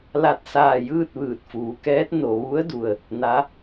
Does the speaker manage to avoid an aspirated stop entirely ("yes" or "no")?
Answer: yes